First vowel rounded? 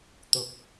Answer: yes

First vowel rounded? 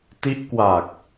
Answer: no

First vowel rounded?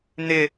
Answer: no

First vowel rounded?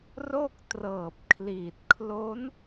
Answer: yes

